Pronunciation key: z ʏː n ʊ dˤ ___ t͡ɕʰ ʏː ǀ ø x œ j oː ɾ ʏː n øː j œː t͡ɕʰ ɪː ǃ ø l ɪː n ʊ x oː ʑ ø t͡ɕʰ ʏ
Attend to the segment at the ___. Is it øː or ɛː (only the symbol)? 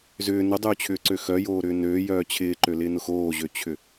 øː